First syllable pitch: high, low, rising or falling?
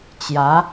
rising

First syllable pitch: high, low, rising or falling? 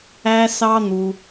high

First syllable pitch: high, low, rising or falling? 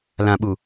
low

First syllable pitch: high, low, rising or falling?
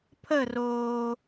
falling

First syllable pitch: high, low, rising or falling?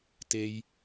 low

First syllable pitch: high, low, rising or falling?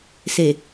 low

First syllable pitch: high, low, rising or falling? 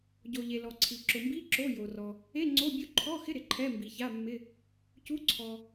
low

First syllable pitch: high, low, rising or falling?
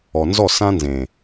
low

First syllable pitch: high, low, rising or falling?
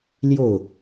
falling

